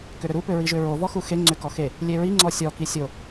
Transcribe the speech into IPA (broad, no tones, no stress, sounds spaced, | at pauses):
k ʏ ɾ ʏ ɾ u p ʏ ɹ i ʒ ʏ ɹ o v ɔ x u x e ŋ͡ǀ ʏ k ɔ x e | lʲ e ɹ i ŋ͡ǀ ɔ sʲ ɔ k i sʲ o